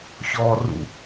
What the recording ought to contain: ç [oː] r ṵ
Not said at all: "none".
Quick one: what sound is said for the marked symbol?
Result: ɔː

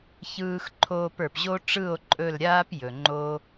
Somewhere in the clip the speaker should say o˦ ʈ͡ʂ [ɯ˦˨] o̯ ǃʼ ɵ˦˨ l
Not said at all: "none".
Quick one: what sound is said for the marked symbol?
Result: ɯ˦˨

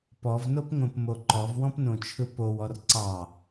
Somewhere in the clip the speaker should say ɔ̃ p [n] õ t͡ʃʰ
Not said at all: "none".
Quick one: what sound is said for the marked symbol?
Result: n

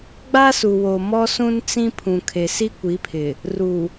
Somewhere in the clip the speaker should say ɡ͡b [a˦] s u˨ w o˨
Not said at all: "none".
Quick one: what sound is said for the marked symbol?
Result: a˦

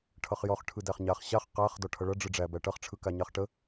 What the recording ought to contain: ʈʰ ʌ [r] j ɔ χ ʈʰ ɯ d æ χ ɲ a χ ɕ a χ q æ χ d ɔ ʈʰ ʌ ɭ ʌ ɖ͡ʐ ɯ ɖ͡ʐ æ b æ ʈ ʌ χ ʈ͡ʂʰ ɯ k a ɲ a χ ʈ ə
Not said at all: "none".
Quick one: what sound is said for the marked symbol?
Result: χ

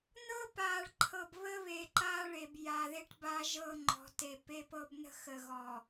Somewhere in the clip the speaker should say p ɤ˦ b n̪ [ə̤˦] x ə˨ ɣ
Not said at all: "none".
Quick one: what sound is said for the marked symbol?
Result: ə̤˦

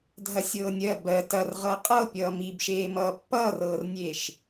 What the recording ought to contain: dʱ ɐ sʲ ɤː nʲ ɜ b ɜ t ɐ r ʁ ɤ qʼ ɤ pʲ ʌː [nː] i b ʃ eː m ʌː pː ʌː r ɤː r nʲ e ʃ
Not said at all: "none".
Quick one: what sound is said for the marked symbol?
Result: m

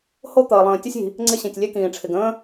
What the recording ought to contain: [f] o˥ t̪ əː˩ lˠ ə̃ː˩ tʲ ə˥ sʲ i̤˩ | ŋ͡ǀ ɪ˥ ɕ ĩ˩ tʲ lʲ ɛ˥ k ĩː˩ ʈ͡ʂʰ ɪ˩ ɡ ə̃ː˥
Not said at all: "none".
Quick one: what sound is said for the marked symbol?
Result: h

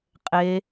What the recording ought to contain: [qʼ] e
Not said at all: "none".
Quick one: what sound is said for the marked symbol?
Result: qʼ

